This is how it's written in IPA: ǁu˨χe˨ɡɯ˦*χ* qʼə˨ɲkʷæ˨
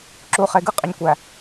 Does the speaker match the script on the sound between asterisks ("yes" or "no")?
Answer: no